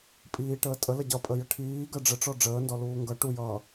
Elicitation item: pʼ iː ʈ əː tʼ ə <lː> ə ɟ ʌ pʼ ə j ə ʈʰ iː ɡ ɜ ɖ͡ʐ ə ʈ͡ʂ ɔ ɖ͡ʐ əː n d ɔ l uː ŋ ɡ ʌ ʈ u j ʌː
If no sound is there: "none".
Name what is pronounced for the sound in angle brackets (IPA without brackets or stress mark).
l